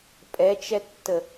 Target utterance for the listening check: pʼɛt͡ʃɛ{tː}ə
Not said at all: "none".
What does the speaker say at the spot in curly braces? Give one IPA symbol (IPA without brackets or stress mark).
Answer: tː